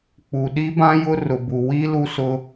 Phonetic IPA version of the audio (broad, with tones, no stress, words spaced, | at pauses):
k͡pu˨ɗi˦bã˦jʊ˦ rʊ˨bu˨ wi˦ lu˦sʊ˦